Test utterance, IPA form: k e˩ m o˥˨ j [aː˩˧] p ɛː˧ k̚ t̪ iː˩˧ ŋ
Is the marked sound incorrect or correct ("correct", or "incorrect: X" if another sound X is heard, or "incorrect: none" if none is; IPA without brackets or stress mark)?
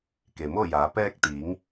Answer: correct